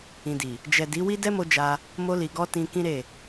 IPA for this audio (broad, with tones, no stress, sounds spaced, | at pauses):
ĩ˨ d i˨ | d͡ʒ ɛ˨ d i˨˦ w i˦ d ɛ˦ m o˧ d͡ʒ a˧ | m o˧ l i˨ ɡ ɔ˧ t ĩ˧ k ĩ˦ ɾ e˦˨